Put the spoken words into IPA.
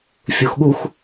fʲ u x ɠ u x

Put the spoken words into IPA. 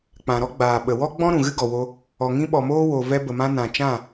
k͡p ã˨ ɾ ɔ˦ ɡ͡b aː˨ ɓ ə˨ w ɔ˦ ɡ͡b ɔ̃˦ ɾ ũ˨ ɣ ɨ˦ ɡ ɔ˨ w o˧ | ɔ˨ ŋ ĩ˧ ɓ ɔ˨ m oː˦ w o˨ v ɛ˧ b ə˨ m ã˧ n ã˨ t͡ʃ ã˦˨

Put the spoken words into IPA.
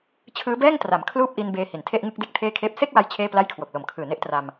t͡ɕʰ ɯː˦˥ b ɛː˥˩ ŋ t r a˩˦ m kʰ l uː˥˩ p̚ ʔ i˧ n b eː˧ h i˩˦ n tʰ e˥˩ ʔ ŋ ɯ˥˩ k̚ d e˥˩ k̚ tʰ eː˥˩ kʰ eː˥˩ p̚ s e˥˩ k̚ w a˧ j t͡ɕʰ eː˥˩ p l a˥˩ j kʰ w o˨˩ k̚ l o˨˩ m kʰ ɯː˨˩ n e˦˥ ʔ t r a˧ m

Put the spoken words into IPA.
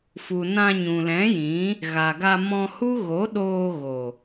f u˨ n ã˧ ɲ ũ˨ l ɛ̃˨˦ j ĩ˨˦ | ɣ a˨ ɡ a˧ m ɔ̃˧ h u˦ ɣ o˨˦ ɗ oː˧ ɣ o˨

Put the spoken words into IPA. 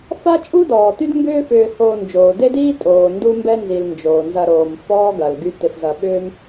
f a˦ t͡ʃʼ u˥ d ɔː˩ t y˥ d ŋ ɡ ʏː˥ f ʏː˨ h oː˨ n d͡ʒ oː˩ d e˥ d iː˥ tʼ oː˩ n d u˦ m b ɛ˦ n z i˩ l n d͡ʒ oː˩ n z ɐ˨ ɾ oː˩ m f ɔː˦ ɡ ɐ˩ l ɡ y˨ t ɪ˨ f z ɐ˨ ɓ ʏː˥ m

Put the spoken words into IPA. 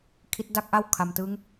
kʰ i˦˥ t̚ d a˥˩ k̚ ʔ a˥˩ w kʰ a˨˩ m t ɯ˦˥ ŋ

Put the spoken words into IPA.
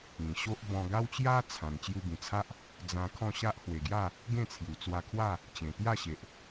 ĩ˨˩ ɕ o˦ ʔ b ɔ̃˧ ɡ a˦ w t͡ɕ j a˦ t͡sʰ ã˨˩ n t͡ɕ j u˧ b ĩ˨˩ t͡sʰ a˦ ʔ | d͡z ã˧ kʰ ɔ̃˥˧ ɕ a˦ ʔ h w e˨˩ ɡ j a˥˧ | ɡ ẽ˥˧ t͡sʰ j u˨˩ t͡s w a˧ kʰ w a˥˧ | t͡ɕ ẽ˨˩ t̪ j a˥˧ ɕ e˨ ʔ

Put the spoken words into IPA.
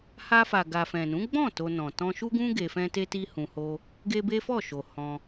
h a˧ f a˨ ɡ a˨ f ɛ̃˨ n ũ˨˦ ɡ͡b ɔ̃˦˨ t o˧ n ɔ̃˨ t ɔ̃˧ ʃ u˦ ɡ ũ˦ ɡ e˧ f ɛ̃˦ t e˦ t i˦ h ũ˧ h o˦ | ɡ e˦ b e˦ f ɔ˦˨ ʃ o˨ h ɔ̃˧

